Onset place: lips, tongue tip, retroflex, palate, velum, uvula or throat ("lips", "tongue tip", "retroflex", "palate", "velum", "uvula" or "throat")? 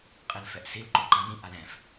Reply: uvula